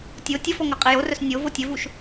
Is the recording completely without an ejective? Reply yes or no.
no